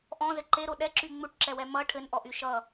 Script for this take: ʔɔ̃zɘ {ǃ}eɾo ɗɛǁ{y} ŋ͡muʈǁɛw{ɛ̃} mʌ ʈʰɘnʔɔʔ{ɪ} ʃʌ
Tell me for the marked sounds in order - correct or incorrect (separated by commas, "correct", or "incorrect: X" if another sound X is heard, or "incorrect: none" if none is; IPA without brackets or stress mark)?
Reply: correct, correct, incorrect: ɛ, incorrect: y